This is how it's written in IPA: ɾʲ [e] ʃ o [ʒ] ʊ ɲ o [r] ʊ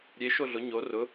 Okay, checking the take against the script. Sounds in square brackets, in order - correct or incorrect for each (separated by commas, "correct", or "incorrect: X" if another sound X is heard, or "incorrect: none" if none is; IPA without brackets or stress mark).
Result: correct, incorrect: ɮ, correct